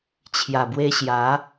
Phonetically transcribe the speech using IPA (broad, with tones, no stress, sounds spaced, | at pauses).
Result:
t͡ɕʰ j a˨˩ b w e˧ ɕ j a˨˦